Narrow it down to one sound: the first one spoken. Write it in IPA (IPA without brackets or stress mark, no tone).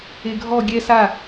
e